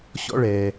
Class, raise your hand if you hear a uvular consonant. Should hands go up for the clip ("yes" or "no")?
no